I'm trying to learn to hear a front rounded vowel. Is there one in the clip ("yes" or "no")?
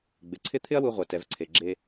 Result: no